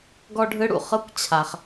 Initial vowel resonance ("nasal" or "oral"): oral